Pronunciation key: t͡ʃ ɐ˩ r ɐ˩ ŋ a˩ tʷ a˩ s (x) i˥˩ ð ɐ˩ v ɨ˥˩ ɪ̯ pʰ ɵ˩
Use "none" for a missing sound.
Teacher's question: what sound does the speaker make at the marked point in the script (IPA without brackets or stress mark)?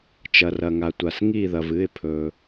ŋ